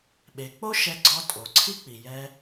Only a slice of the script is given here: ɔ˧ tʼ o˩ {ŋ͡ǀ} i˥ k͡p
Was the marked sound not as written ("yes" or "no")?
yes